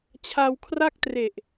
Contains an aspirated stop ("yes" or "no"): yes